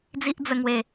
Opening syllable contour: high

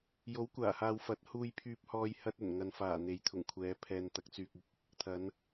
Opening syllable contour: rising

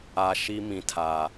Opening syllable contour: low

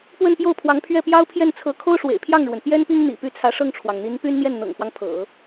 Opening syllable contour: falling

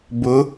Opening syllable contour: rising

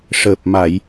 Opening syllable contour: low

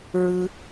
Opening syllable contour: high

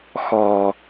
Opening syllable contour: low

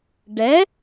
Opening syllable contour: rising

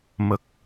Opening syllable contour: low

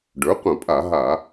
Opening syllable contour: rising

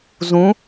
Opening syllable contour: rising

